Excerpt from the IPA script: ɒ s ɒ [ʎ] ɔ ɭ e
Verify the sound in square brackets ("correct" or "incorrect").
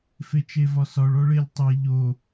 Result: incorrect